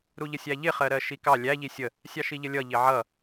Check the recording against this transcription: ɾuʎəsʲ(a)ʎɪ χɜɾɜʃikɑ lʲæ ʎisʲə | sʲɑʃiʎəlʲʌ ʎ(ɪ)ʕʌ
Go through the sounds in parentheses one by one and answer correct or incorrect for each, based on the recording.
incorrect, correct

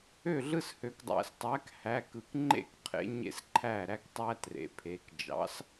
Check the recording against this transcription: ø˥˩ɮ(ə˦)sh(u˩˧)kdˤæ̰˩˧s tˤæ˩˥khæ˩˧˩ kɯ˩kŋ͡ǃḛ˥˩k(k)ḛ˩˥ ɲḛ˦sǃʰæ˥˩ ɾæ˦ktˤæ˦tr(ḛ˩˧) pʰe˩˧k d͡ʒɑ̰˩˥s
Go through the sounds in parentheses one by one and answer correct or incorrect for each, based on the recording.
incorrect, incorrect, incorrect, correct

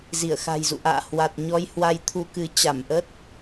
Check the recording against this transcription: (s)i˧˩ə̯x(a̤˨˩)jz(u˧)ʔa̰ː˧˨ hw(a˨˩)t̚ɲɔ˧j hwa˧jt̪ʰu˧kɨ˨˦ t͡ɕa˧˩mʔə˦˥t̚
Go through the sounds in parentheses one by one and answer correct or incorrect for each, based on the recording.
incorrect, correct, incorrect, correct

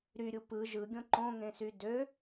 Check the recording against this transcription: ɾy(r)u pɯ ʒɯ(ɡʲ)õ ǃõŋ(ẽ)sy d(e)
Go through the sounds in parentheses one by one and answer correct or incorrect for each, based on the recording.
incorrect, correct, correct, incorrect

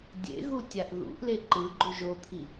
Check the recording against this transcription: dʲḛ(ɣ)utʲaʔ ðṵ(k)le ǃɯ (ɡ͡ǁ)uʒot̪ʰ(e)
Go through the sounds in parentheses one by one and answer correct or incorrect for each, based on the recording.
correct, incorrect, incorrect, incorrect

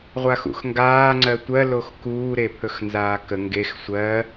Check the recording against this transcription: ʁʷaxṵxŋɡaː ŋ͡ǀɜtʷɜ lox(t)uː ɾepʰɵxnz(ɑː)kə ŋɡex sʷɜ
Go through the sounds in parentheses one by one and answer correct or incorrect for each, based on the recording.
incorrect, incorrect

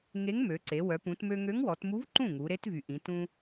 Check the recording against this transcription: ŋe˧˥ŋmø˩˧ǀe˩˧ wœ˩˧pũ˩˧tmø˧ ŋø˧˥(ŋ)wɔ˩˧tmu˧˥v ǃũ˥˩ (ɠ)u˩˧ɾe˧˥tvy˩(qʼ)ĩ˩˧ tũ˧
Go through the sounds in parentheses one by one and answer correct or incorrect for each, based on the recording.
correct, incorrect, incorrect

